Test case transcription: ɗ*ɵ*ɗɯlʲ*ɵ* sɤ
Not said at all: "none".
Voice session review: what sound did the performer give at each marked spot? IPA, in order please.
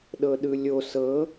ɤ, o

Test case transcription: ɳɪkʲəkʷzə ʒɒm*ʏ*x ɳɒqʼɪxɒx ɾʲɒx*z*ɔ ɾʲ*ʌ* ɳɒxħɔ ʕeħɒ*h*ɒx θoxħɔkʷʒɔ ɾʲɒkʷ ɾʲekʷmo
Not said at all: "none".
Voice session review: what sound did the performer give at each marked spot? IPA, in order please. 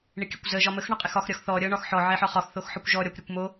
ə, θ, ʌ, χ

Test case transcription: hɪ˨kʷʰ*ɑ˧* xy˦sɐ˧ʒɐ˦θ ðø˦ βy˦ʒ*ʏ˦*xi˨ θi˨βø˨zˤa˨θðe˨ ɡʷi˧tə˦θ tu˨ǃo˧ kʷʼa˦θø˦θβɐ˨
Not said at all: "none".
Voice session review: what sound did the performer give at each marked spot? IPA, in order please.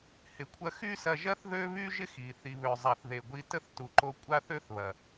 ɐ˧, ɪ˦

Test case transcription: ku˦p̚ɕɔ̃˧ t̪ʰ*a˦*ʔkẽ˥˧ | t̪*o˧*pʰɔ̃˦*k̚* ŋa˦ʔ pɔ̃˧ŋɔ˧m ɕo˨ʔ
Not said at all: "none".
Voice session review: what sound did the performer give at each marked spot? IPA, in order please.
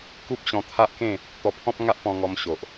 a˦, ɔ˧, p̚

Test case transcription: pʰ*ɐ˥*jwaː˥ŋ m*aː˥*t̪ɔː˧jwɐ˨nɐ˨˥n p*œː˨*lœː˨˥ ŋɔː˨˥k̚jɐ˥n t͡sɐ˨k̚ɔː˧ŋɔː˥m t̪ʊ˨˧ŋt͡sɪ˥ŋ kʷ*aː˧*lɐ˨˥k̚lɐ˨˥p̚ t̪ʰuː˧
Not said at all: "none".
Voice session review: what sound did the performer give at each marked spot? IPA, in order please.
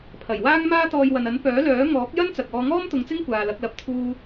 ɐ˨˩, aː˥, œː˨˥, aː˨

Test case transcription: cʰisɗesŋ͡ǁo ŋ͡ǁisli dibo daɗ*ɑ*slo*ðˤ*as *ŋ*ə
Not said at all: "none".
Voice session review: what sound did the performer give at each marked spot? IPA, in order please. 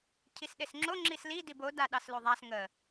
ɑ, ðˤ, ŋ

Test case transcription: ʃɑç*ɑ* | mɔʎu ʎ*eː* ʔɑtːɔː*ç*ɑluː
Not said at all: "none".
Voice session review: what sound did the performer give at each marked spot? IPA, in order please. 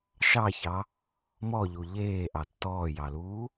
ɑ, eː, j

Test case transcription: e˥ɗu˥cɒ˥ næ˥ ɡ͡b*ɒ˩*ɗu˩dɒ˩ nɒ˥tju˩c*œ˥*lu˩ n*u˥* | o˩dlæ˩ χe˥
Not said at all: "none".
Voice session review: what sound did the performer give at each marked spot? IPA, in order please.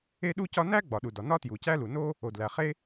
ɒ˩, æ˥, o˥

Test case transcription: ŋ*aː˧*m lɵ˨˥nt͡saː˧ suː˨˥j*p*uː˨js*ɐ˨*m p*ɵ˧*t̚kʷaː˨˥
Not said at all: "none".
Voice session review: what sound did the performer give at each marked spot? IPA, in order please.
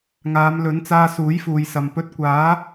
aː˨˧, f, ɐ˨, ɵ˧

